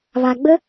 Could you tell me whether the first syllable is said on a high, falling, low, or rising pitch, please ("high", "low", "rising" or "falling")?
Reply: low